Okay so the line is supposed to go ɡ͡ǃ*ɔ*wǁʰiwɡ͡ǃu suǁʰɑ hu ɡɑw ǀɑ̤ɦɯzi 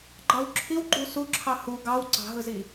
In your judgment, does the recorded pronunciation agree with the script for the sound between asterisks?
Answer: no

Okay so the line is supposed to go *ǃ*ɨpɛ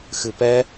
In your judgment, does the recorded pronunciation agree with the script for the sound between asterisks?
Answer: no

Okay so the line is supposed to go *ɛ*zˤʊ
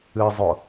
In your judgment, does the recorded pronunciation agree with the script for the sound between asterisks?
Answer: no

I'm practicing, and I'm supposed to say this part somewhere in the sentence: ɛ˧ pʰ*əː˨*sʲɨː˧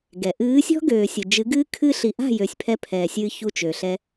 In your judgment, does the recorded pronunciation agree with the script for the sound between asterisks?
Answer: no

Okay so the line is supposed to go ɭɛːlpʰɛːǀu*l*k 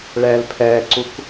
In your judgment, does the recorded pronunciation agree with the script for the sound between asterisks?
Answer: no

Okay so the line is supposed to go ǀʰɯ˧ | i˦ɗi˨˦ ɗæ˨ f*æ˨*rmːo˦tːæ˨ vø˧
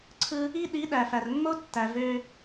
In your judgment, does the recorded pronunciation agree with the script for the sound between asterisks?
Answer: yes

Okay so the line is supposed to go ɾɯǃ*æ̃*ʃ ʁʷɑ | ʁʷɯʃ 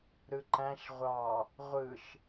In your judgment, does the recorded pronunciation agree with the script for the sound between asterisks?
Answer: yes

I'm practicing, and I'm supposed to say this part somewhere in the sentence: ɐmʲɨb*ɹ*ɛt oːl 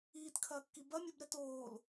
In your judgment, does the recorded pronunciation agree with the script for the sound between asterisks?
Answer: no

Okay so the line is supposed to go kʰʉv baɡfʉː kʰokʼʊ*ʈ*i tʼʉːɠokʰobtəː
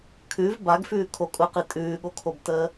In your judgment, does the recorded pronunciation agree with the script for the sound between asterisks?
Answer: no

